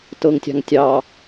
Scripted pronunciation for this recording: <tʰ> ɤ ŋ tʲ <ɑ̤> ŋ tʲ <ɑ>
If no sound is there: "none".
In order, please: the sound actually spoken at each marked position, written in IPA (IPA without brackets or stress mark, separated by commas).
t, ɑ̤, ɑ